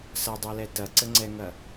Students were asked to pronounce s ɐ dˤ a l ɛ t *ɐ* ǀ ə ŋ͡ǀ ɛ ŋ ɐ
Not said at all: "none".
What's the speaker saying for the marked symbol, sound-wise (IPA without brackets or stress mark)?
ɐ